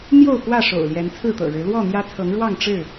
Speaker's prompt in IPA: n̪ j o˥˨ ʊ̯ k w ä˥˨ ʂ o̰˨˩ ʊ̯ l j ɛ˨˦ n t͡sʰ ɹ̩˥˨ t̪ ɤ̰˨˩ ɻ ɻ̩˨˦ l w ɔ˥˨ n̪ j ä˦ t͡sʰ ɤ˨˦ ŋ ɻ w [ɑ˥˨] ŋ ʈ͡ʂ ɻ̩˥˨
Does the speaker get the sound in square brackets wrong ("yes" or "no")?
no